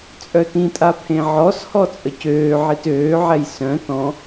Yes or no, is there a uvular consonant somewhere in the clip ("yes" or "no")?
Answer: no